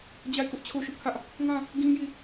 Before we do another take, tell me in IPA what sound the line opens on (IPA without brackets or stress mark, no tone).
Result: d͡ʑ